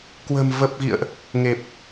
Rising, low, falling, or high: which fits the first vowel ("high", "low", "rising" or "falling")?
low